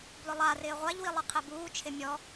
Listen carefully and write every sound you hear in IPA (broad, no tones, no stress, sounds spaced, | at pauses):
b l ʊ lˠ a r ɪː ʁʷ a ʎ w i lˠ ɪ qʰ ɛ b uː t͡ʃʰ ɪ mʲ ɔ